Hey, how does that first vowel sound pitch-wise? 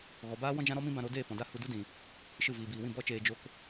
low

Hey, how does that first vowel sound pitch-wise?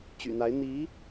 low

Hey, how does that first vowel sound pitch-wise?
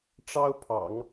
high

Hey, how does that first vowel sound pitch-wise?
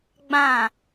falling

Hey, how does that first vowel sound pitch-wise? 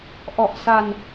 low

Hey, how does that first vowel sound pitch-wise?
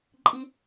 low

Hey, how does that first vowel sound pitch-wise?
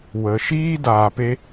low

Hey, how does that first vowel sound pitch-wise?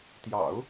low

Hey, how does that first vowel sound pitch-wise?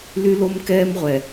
high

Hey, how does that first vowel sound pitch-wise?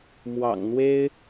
low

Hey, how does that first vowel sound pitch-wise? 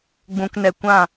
low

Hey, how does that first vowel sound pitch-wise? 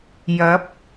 rising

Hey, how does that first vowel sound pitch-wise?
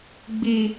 low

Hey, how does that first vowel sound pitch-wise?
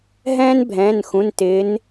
high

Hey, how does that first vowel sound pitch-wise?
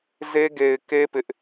high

